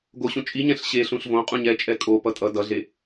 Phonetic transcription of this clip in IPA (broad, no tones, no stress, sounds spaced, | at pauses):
ɡ o ɕ ũ t͡ʃʼ i ɲ ɛ̃ ɬ ɕ e ɬ ũ ɬ v õ qʼ ũ ɲ ɛ t͡ʃʼ ɛ kʼ o p ʌ tʼ ʌ d ʌ ɮ e